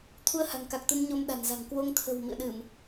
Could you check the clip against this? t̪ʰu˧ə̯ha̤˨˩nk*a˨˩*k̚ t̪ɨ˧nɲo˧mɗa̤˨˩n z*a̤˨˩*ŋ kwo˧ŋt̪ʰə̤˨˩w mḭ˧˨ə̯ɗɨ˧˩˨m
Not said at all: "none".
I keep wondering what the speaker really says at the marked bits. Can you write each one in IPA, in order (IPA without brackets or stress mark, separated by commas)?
a˨˩, a̤˨˩